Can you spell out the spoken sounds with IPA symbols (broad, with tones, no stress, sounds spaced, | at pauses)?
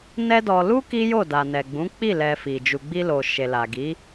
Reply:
n ɛ˦ d ɔ˧ l u˦ k i˦ j o˦˨ d a˨ n ɛ˨ ɡ͡b ũ˨˦ k͡p i˦˨ l ɛ˧ f i˨ d͡ʒ u˧ ɡ͡b i˧ l o˨ ʃ e˨ l a˨ ɡ i˨˦